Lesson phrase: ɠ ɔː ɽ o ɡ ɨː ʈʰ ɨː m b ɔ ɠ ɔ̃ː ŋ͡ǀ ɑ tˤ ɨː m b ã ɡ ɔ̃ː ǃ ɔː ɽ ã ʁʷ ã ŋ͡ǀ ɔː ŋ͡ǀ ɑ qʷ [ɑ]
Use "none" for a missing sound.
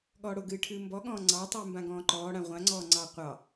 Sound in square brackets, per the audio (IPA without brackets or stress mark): ɑ